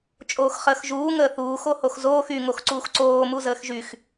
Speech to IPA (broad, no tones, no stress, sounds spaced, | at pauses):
t͡ʃʼ oː x χ əː x ʒ uː ŋ əː θ uː x o h o x z oː x y ŋ o x ǀ uː x ǀ oː m u z əː x ʒ y x